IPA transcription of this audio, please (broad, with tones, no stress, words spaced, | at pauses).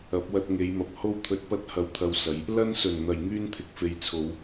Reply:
ɐ˨˥p̚wɐ˧t̚ŋe˨˧jmɐ˨p̚ ho˥wt̪ʰɵ˧t̚pɐ˥t̚ hɐ˧wt̪ʰɐ˧wsɐ˨˧j | lɐ˥nsɵ˨˩nn̪ɐ˨˩j ŋyː˥nt̪ʰɪ˨k̚fe˨˧j t͡sʰo˨˧w